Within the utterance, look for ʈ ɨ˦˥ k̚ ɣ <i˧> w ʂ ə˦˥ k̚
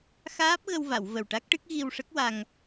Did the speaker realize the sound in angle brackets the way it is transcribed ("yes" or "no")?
yes